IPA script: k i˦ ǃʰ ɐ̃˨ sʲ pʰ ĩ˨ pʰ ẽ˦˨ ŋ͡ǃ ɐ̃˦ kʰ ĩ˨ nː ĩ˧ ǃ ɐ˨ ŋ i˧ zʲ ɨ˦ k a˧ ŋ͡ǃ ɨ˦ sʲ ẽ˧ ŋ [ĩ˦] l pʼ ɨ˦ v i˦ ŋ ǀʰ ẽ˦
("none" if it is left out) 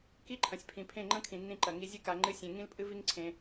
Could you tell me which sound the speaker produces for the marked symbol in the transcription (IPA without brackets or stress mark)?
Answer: ĩ˦